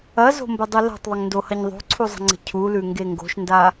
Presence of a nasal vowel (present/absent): absent